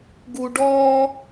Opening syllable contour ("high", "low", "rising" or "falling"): low